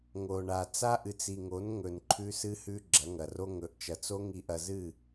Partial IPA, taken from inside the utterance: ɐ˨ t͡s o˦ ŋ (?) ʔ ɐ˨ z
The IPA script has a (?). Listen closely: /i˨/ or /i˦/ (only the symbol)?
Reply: i˨